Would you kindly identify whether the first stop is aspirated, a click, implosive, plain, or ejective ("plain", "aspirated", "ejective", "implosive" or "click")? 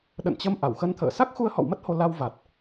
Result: implosive